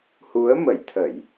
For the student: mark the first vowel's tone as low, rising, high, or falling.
rising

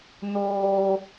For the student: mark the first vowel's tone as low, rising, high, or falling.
low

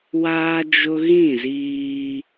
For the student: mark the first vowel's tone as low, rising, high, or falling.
high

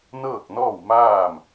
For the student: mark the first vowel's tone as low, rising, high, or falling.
falling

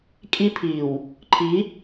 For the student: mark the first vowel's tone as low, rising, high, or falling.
high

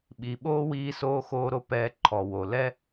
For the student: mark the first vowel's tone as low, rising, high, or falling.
low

